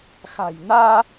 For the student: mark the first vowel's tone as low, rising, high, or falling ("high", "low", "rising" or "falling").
low